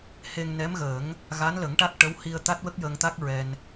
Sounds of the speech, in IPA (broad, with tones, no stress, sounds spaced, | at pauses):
h e˧ ŋ n ɛ˧˥ m ɣ əː˨˩˦ ŋ | ɣ a˧˥ n l ə˨˩˦ ŋ ʈ a˦˥ k̚ ʈ ə˧˥ w h i˧ ə̯ t̪ a˦˥ t̚ w ə˦˥ k̚ j əː˧ ŋ t̪ a˦˥ k̚ ɹ ɛ˧ n